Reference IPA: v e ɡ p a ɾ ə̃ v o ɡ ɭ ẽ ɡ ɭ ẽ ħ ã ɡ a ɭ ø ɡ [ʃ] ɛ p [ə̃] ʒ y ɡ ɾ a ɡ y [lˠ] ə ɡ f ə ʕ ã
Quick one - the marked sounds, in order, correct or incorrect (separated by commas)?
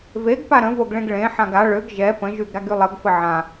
incorrect, correct, correct